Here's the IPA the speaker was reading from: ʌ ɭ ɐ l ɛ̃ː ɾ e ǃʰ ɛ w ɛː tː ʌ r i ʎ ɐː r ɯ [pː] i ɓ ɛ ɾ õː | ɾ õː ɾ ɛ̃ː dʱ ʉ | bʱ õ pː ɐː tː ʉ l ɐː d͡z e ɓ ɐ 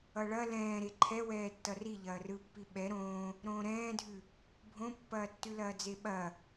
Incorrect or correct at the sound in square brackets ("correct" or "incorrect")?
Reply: correct